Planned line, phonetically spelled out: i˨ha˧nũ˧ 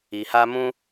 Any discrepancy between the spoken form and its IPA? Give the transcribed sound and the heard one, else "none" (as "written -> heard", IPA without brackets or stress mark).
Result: n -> m